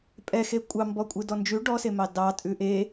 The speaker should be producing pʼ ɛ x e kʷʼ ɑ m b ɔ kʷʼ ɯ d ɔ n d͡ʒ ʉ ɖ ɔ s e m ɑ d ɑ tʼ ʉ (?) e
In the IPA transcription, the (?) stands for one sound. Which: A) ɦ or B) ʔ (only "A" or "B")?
B